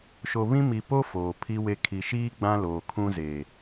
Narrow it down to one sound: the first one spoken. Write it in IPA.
ʃ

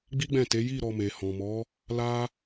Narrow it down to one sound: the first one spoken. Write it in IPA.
ɡ͡b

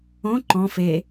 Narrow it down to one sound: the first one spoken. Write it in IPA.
õ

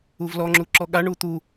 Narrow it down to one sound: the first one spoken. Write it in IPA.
u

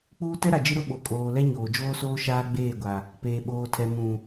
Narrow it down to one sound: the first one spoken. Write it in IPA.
k͡p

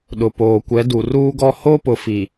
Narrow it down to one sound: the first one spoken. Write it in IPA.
ɗ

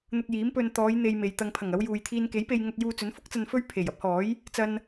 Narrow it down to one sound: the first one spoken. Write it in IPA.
n̪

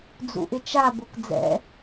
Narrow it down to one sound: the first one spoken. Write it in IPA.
d͡z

